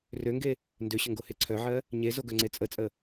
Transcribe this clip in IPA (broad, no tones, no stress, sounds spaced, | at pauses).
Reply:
r ø ŋ ɡ e | n d ø ɕ ə ŋ ɡ o h e ǀʰ œ ʕ ɜ | ɲ e z o ɡ œ ŋ͡ǀ e t͡sʼ ə t͡sʼ ə